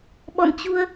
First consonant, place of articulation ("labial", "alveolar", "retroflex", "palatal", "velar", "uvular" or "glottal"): labial